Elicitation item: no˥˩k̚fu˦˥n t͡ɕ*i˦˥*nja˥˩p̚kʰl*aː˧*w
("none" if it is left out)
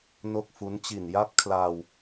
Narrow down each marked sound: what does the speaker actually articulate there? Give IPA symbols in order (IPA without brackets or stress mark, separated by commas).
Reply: i˨˩, aː˧